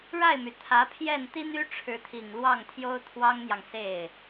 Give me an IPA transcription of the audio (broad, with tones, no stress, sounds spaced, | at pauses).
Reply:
ɻ a˥˩ ɪ̯ m y˩ t̪ʰ ä˧˥ pʰ j ɛ˥˩ n t̪ i˥ n̪ y˥ ʈ͡ʂʰ ɻ̩˧˥ t̪ʰ i˨˩ ŋ l w ɑ˥˩ ŋ t̪ʰ j o˥ ʊ̯ t̪ʰ w ɑ˥ ŋ n̪ j ɑ˨ ŋ s e˥˩ ɪ̯